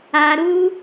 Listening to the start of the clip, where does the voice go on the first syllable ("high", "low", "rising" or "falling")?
high